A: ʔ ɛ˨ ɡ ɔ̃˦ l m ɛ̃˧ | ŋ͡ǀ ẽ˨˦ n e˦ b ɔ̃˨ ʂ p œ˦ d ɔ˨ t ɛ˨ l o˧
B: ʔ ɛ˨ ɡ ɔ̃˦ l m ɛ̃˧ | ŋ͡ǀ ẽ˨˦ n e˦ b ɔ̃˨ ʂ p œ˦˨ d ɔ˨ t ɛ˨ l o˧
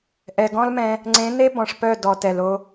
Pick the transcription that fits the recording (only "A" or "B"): B